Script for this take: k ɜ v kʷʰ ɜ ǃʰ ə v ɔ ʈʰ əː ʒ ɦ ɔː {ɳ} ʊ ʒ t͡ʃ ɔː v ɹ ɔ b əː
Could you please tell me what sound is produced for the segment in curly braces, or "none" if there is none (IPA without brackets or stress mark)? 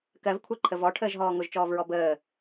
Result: ŋ